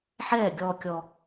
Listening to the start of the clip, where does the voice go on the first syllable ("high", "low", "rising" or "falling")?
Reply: falling